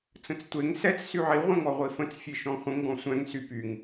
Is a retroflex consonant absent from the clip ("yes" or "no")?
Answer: yes